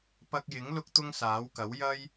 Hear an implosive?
no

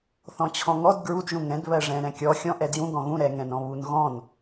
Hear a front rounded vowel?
no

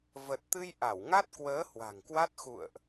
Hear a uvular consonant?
no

